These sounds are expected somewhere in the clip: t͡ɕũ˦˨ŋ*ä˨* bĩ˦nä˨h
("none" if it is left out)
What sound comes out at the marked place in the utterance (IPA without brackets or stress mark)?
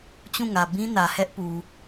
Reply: ä˨